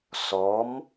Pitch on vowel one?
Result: rising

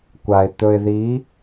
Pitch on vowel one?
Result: low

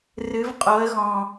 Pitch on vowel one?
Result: rising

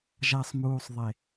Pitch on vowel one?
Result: low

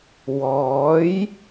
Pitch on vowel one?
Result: rising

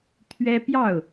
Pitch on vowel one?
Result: high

